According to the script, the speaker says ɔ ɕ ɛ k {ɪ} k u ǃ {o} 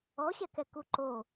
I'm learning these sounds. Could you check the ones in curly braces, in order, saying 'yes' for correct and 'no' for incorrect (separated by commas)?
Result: no, yes